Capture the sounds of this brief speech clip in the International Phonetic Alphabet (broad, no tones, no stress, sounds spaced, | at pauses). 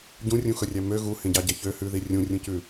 ɟ ũ rʲ ũ x ɵ rʲ æ m ø ɣ u h ẽ ɟ ɑ ɟ ɛ ç ø h ʉ ð i rʲ ũ rʲ ũ c ʉ